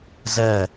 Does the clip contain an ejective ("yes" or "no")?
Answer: no